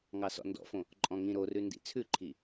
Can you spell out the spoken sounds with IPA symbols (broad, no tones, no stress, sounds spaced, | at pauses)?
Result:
ŋ ɑ s ɔ̰ n d ɔ̰ f õ | ǃʼ ɔ̃ ŋ ĩ ɾ o r ʉ n d ḭ t͡sʰ ʉ ǃʰ i